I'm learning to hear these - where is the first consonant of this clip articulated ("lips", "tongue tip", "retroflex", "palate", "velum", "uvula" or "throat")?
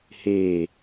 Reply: throat